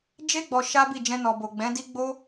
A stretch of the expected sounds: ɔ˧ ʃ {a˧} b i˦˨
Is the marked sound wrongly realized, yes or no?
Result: yes